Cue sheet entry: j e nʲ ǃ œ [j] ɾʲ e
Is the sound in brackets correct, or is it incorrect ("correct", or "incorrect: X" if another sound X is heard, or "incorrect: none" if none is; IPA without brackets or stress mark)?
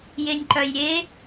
correct